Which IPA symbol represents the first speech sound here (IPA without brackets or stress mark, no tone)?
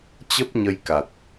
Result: t͡ɕ